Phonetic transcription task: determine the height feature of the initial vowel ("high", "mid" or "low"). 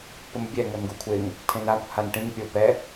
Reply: mid